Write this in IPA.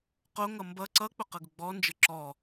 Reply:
qoŋʌ mbʌ ǀʌk͡pʊqɤɡʊ ɡ͡bɔnd͡ʒə ǁɔ

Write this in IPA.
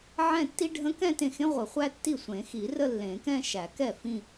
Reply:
ʕɛ̃˥˧tːi˥ ɖʱə̃˧˥kɛ̃˥˧ tẽ˥˩xẽ˥ ʁʷə˨˩˦ χʷæ˥tːi˥˩ sʷẽ˨˩˦xi˨˩˦rə˥˧ lːẽ˨˩˦kɛ̃˥˧ ʃæ˨˩˦kɛ˥˩ fĩ˥˧

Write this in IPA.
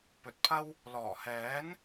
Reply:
pɵ˨t̚pʰɐ˥w | lɔː˨˩hɛː˨˥n

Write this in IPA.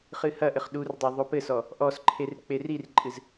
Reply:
χɨhɐʔɘχ ɗurdˤo ðˤopɘsɔ | ʔɔsǃʰer k͡perirǃʼɨz

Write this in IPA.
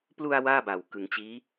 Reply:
plu˧a̯ waː˥˩ba˨˩wkɯ˩˦ŋt͡ɕiː˦˥

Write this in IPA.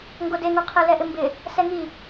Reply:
ŋɡodeŋuqʰe lɛʔɪmbɪ | sɛŋi

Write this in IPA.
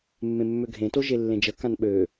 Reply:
mːẽmːøɡʱẽto ʒelːẽd͡ʒə kãnɓø

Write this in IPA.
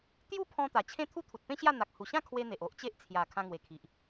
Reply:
t̪ju˥˧pʰɔ̃˧ t̪a˨˩t͡ɕʰẽ˦ t̪ʰu˦t̪ʰu˨t̚pẽ˦ɕja˥˧ n̪a˨k̚ hu˨˩ɕã˥˧kʰwe˧ n̪e˨ʔ o˦ʔt͡ɕe˦ʔ t͡sʰja˨˩ kʰã˧ŋwe˨˩kʰi˨ʔ

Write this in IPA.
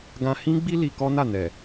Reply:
ɡã˧ hĩ˦ɡ͡bi˦ li˧kɔ˦na˦˨ nɛ˨

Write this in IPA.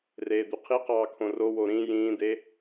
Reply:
reːd̪yqʰiqɑː kʰõrowo ɾĩ jĩːd̪e

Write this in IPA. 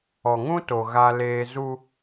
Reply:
ɔ˨ŋũ˦to˨ ɣa˦leː˦ zu˦

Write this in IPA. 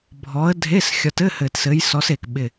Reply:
bʱɔ˨˦ə̯ dʱe˧˥˧s xʲɒ˨˦tɘ˧˥˧hɘ˨˩tsɘ˨˦j sɔ˨˦se˨˩k ɓɪ˨˩

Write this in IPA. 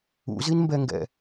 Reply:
ṵzinmbɛŋɡɛ̰

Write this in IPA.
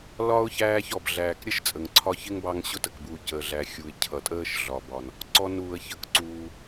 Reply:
lɒ˥ʊ̯çæː˦ç ɔ˩bɮæː˨k ɾʲə˥ʃt͡sʼə˩ŋǀʰɒ˦çɪ˥ŋ bɑ˦ŋɕʊ˥tə˩kbuː˨ cəː˩ɮæ˩xʲu˩ɪ̯ cʰʌ˩tʼəː˦ʃɮɒ˩bɒ˩n | ǀɔ˨nuː˩ə̯çə˩kǀuː˩

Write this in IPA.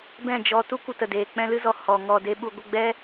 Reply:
bɛ̃˦˨d͡ʒɔ˧tu˦ kʷə˧tə˨deː˨ k͡pɛ̃˧lɨ˧zɔ˨ hɔ˨ ŋɔ˨de˧ ɓu˨ɡʷə˦˨ɡ͡bɛ˦

